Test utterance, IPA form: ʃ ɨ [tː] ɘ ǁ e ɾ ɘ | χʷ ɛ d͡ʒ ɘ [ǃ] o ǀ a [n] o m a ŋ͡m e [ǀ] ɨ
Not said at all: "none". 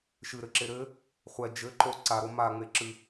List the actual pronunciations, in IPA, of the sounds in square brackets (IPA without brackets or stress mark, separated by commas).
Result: ɾ, ǃ, ɾ, ǁ